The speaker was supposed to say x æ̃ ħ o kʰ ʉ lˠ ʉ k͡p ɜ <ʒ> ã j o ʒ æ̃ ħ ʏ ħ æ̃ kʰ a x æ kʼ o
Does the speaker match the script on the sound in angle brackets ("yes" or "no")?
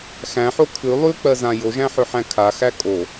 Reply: no